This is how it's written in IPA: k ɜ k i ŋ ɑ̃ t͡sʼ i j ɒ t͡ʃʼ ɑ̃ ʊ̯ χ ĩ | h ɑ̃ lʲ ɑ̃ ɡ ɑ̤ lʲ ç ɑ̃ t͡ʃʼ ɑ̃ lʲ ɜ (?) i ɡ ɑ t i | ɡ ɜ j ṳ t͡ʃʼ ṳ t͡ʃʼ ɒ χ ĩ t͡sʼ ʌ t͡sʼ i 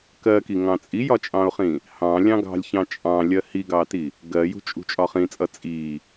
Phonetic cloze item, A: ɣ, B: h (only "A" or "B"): B